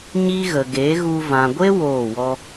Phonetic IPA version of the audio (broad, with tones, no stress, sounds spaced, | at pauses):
ɲ i˦ ɣ ə˨ ɡ eː˨˦ ɣ u˧ v ã˨ ɡʷ e˦ w oː˦˨ w ɔ˦